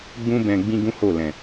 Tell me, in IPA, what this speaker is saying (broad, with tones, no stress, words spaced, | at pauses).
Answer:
ɡ͡bũ˦bɛ̃˧ ɡ͡bĩ˦ɡũ˦ho˦˨lɛ̃˨